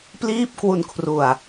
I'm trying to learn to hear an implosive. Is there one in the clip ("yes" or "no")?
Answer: no